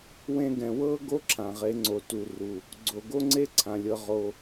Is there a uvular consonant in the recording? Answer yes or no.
yes